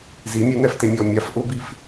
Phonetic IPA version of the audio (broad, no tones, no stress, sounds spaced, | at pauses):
z i mʲ ʊ n̪ ɛ f t e mʲ ɔː mʲ a f ʔ ʊ b i f